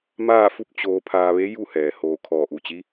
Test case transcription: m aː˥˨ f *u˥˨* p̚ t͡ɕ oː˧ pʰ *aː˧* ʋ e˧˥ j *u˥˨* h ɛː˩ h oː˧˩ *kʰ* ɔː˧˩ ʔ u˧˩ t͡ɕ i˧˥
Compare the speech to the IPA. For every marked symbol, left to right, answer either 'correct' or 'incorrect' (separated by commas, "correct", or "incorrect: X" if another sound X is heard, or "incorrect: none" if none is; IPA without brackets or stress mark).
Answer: correct, correct, correct, correct